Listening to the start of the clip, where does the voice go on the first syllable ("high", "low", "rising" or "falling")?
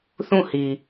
falling